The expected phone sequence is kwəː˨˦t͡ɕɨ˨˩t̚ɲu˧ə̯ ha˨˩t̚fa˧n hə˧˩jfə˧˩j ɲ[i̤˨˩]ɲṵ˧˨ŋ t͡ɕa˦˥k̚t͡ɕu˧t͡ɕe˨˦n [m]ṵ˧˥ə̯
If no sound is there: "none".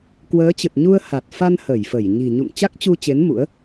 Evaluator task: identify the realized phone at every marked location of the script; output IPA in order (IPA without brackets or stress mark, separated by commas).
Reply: i̤˨˩, m